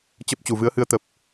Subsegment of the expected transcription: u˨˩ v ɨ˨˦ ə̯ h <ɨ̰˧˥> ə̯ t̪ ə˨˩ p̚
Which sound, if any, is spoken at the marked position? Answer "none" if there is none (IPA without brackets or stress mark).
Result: ɨ˨˦